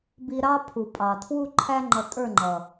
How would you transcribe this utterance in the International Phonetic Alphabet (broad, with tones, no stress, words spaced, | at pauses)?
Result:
bi˧ɾɑ˦ pʰu˨pʼɑ˨tʰwu˦ǃʰæ˦ ŋ͡ǃʌ˧tʼə˞˦˨ŋ͡ǃʌ˨